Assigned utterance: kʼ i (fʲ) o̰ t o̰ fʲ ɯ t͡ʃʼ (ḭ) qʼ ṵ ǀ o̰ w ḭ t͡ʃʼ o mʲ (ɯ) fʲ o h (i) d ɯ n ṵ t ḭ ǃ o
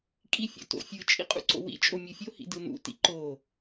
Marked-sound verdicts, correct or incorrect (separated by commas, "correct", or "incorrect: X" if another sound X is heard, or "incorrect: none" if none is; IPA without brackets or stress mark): correct, correct, correct, incorrect: ḭ